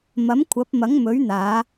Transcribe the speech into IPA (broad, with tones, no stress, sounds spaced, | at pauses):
m ɐ˨˥ m kʷʰ ɐ˨˥ p̚ m ɐ˨˥ ŋ m ɵ˨˥ ɥ n̪ aː˨˧